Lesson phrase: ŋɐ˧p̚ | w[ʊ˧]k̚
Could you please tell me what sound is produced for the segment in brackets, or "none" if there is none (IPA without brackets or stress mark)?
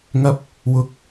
ʊ˨˥